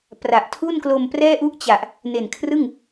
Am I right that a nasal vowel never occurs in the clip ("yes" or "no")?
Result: yes